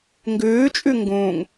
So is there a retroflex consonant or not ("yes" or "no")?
no